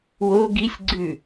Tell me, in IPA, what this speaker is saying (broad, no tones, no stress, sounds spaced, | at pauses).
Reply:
w o ɡ i sʲ ɡ͡ǀ ʉ